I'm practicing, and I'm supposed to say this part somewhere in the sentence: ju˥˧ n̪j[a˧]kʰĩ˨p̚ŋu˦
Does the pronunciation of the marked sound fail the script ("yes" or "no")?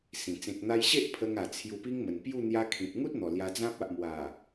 no